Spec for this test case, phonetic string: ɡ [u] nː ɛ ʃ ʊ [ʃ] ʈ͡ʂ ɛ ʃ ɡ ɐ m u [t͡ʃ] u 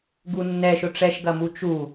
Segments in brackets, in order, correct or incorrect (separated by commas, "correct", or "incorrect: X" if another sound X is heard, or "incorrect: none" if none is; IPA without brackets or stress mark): correct, incorrect: none, correct